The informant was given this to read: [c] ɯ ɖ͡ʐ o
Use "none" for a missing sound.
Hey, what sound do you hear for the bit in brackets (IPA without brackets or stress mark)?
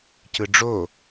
c